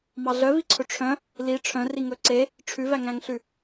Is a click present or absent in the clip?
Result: present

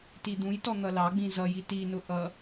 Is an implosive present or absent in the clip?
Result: absent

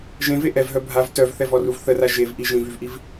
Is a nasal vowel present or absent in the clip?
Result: present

